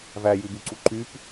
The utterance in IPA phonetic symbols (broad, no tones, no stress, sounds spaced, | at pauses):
v æ j ʉ b ʉ ǀ u ǃ y p